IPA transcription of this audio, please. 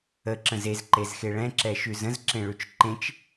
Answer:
əǁə̃z ezǃezxe ɭɛ̃ǁɛʃʉz ə̃zǁẽɭʉt͡ʃ ǃẽt͡ʃ

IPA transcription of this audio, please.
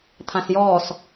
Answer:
t̪ʰãsjɔːs

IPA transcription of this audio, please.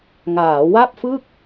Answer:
ŋaː˩˦wa˥˩p̚ fɯ˥˩k̚

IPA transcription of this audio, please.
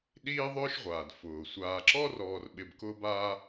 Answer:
ɗiː˥ðˤʊː˥ʃʁʷaː˩d fʊː˩ sʷaː˨ǁɔ˥rɔː˨r ɓɪ˨bkʊː˦baː˦

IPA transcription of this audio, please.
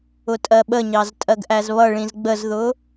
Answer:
ʊtʼɜɓəɲɑz tʼɜɡʔæzβʌɭĩz ɡ͡bəzðʊ

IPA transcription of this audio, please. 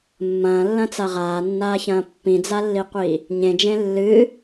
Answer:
mːɐ̃ːlːɐ̃t͡sa ʁaːnːaːçɐ̃ː pːĩd͡zalːiqʷiː | ɲẽd͡ʒẽ lːɨː

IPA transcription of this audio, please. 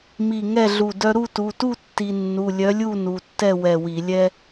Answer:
mi˧˩ŋɛ˥˨ɮu˧˩dœ˦ ɾu˥˨tu˩˧˩tu˥˨ tːi˦ nːu˩˧˩lʲœ˨˥lʲu˥˨ nu˩˧˩tːɛ˥˨wɛ˧˩wi˧˩˧ lʲɛ˦

